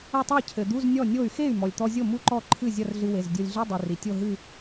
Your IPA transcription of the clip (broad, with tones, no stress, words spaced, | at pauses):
ɐ˥˩tˤɘ˥˩i̯ cʰɘ˩d̪u˧˥˧z nʲɔ˥˩nʲo˥˩y̯ xe˥˩y̯ mɔ˩lʲt̪ɔ˧zʲo˥˩ mu˥˧ǃɔ˥˩ǃʰɨ˥˩ zʲɐ˥˧rɮɨ˧we˩˧˩zdʲo˧lʲ ɮi˧˥˧dˤi˩ ri˩tʲo˥˧ɦɨ˥˧